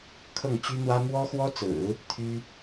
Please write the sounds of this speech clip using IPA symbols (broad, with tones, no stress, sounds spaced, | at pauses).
kʰ ɤ˥˩ ŋ t͡ɕ y˥ n̪ w ä˥ m w ɔ˥ x w ɔ˥ t͡s ɹ̩˨˩˦ | t̪ʰ y˥